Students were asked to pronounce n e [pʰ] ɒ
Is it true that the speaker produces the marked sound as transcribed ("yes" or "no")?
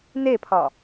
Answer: yes